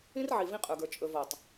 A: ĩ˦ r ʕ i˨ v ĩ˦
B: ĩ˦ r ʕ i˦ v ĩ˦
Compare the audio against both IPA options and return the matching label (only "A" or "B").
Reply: A